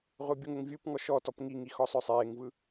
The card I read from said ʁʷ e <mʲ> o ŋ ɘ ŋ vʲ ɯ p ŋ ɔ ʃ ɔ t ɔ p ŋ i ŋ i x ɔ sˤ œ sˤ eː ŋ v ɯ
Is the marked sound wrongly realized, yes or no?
yes